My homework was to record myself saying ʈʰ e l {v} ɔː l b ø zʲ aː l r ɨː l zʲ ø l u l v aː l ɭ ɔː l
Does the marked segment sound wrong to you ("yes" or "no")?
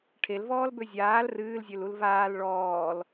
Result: no